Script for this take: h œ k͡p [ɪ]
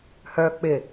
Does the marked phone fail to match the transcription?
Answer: no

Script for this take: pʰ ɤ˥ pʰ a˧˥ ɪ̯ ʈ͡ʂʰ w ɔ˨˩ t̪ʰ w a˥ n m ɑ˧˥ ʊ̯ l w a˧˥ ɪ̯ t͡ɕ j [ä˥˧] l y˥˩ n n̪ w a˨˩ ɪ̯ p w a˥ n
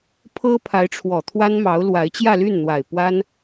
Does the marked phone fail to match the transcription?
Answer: no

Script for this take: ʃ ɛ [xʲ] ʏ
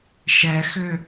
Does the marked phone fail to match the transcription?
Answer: yes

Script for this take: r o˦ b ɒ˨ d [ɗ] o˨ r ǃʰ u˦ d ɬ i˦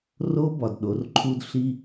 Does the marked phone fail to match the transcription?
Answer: no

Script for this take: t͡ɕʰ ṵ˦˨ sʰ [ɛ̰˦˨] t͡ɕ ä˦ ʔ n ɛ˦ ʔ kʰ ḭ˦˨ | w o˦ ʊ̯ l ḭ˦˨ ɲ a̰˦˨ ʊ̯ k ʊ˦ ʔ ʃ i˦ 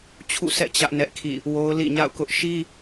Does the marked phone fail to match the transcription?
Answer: no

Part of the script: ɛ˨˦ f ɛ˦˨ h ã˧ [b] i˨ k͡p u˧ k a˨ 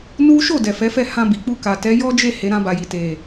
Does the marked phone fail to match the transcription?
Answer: no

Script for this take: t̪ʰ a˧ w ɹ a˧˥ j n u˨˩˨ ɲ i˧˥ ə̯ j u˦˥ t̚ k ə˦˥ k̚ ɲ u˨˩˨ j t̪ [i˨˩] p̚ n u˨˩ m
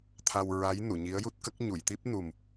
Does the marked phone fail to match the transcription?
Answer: yes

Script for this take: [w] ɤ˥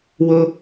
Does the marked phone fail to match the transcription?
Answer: no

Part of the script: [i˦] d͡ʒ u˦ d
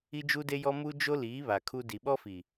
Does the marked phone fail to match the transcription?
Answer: no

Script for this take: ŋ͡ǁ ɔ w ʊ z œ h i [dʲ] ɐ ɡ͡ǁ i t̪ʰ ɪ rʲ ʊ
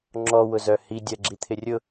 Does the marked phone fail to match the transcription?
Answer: no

